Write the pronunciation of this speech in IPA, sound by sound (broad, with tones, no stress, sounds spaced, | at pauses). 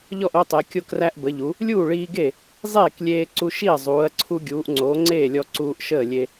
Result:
ʎ ɔ˥˩ ʔ o˧ tˤ e˩˧ kʲ o˧ k r æ˧ ʔ b ə˩˧ ʎ u˩˧ | lʲ uː˥˩ ɭ iː˧ ɡ e˥˩ | zˤ eː˥˩ k lʲ eː˧ ǀ u˧ ʃ i˥˩ ɐ̯ zˤ uː˩˧ ɐ̯ ǀʰ u˧ ɡʲ uː˩˧ ʔ ŋ͡ǀ o˩˧ ŋ͡ǀ eː˥˩ lʲ ɔ˧ ǀ uː˧ ʔ ʃ əː˥˩ lʲ e˧